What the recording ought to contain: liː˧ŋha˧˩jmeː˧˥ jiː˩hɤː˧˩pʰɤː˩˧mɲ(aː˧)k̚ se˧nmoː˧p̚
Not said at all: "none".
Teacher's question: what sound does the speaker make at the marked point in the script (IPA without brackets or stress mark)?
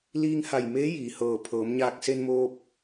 aː˧